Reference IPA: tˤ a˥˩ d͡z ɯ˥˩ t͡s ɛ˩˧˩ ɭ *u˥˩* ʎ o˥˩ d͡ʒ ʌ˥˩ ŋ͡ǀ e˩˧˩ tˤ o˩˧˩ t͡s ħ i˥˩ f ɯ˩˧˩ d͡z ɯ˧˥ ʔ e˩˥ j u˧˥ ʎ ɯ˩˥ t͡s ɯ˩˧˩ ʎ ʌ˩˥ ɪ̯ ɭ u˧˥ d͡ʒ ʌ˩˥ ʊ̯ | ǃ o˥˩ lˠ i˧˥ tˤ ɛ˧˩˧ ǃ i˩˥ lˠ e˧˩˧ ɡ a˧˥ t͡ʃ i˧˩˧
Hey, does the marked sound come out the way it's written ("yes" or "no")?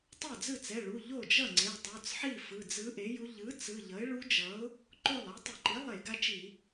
no